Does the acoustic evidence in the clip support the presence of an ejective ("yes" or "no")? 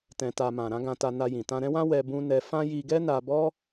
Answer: no